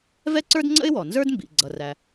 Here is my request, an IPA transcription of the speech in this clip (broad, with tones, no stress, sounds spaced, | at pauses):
v ɛ˥ ǀ ə˞˥ d ŋ͡ǀ ə̰˥ ɪ̯ w ɔ˩ n z ə˞˥ d m b ḭ˩ ɡ͡ǀ ʌ˩ r æ˩